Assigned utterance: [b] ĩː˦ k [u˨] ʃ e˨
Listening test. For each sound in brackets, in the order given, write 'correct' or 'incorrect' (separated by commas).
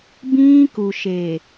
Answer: correct, correct